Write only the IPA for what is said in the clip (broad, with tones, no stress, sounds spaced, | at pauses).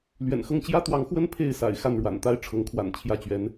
l ɥ ɛ̰˨˩ n x ɤ˥˩ ŋ t͡ɕ j ä˥ t̪ w ɑ˧˥ ŋ x w ə˥ n pʰ e˥˩ ɪ̯ s a̰˨˩ ɪ̯ x a˥˩ n ɻ w a̰˨˩ n t̪ a˥ ɪ̯ ʈ͡ʂʰ ɤ˧˥ ŋ kʰ w a̰˨˩ n t͡ɕʰ j ä˥˩ t͡ɕ ɥ ɛ˧˥ n